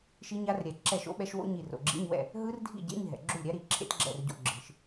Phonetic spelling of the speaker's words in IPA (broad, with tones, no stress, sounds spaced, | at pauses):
ʃ i˦˥ ɲ a˦˥ r ɾʲ ɛ˨˩˦ ǁ ɛ˥˩ ʃ o̰˦˥ ɓ ɛ˦˥ ʃ w o̰˦˥ ɲ i˧˩ r o̰˩ ɡ͡ǁ ḭ˧˥˧ ɲ w ɛ̰˥˩ | ɦ ɯ˦˥ r dʱ ḭ˥˩ ɟ ḛ˧˥˧ ɲ ɦ ɛ̰˩ ɡ͡ǁ u˥˩ lʲ ɾʲ a˦˥ ɾ i˧˩ ǁʰ ḛ˦˥ t ɡ͡ǁ ɛ̰˥˩ r ɟ o̰˧˥˧ ɡ͡ǁ ɯ˨˩˦ ʃ